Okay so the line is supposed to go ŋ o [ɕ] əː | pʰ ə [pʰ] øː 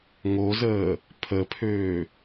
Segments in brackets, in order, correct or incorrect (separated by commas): incorrect, correct